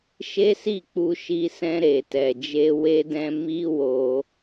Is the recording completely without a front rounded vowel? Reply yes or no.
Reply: yes